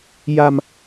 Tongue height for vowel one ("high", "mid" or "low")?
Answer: low